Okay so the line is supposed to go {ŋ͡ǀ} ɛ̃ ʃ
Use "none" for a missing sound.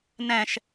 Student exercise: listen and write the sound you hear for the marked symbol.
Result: n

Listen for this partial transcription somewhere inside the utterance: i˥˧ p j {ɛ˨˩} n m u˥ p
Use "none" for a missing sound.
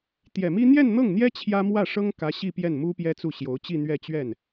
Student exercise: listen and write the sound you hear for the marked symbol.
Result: ɛ˥˩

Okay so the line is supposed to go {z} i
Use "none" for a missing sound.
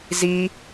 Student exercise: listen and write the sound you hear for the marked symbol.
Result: z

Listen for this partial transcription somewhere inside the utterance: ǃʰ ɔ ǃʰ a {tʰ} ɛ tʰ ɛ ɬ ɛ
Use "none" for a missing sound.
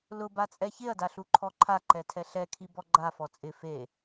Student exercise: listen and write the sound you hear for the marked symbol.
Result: ǃ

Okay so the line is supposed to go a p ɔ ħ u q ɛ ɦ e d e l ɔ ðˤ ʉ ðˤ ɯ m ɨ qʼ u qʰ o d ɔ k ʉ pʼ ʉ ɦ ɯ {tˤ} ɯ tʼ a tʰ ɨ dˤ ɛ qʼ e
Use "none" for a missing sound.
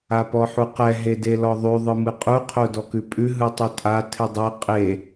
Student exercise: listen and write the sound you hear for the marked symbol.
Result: tˤ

